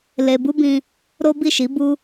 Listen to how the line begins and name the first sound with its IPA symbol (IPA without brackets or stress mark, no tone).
l